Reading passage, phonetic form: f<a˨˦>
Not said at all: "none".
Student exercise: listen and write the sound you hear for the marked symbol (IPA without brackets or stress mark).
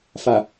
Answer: a˨